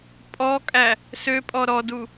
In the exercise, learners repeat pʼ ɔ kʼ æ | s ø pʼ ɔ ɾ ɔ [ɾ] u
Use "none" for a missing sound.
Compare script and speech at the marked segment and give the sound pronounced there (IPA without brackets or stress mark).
d